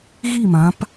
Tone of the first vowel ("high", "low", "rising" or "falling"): falling